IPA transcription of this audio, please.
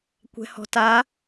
kʷ ɛ̤ h ɔ̤ t a

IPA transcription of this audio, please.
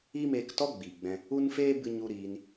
iː˦ m eː˧ k t ɔ˦ ɡ͡b iː˨ ɡ͡b ɛ̃˧ | u˦ n f eː˦ b ɨ˧ ɲ u˧ ɾ iː˧ n

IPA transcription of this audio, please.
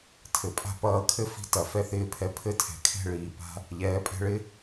tʰ ɘ˩ pʼ a̤˥ p ʌː˧ kʰ ɘ˥ f i̤˧ t ɐ˩ f ɛ˧ θ ɪː˧ pʰ ɛ˧ pʰ ɘ˥˩ tʰ ɛ̤˩ kʰ ɛ̤˥˩ ɭ iː˩ p a̤˧ | ʎ ɛː˩˥ pʼ ɛ̤˧ ɭ ɪ˥

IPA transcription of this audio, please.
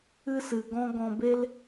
ɨ˦ s ɨ˨ ɡ ɔ̃˦ ɡ ɔ̃˧ b e˦ l

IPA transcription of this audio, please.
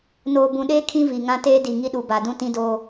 n oː˨ b ũ˨ ɗ eː˦ kʰ ĩ˦ v i˨ ŋ ã˦ t eː˦ d i˨ ŋ i˦ ɗ u˨ b a˨ d ũ˦ t ĩ˦ d oː˦

